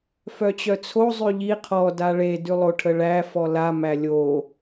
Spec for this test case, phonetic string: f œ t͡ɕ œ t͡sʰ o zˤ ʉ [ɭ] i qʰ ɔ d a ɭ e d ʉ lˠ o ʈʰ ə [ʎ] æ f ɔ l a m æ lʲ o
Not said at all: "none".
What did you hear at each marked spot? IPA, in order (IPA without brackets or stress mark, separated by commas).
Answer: ʎ, ɭ